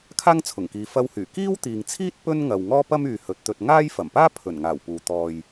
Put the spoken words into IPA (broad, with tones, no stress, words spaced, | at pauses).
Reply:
kʰaː˥ŋt͡sʰʊ˨˩ŋkiː˨ fɐ˧whyː˨˩ kiː˥wt̪iː˨ŋt͡sʰiː˥t̚ pɵ˥nŋɐ˨w ŋɔː˥pɐ˥myː˨ hɵ˨˥t̚t̪ɵ˧t̚ ŋaː˥j fɐ˨˩mpaː˥ pʰɵ˨˩nŋaː˨˩w puː˨ t̪ɔː˨j